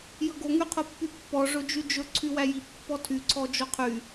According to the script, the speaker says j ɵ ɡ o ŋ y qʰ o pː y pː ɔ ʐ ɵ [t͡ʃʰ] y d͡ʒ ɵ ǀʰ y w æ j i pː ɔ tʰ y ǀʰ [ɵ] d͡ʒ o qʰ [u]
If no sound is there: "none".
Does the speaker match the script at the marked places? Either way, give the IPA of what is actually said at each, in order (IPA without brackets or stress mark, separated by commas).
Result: d͡ʒ, ɔ, y